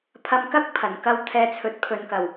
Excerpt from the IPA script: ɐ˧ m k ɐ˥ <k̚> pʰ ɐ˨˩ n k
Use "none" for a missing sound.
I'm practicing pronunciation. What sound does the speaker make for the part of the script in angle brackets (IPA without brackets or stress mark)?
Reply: k̚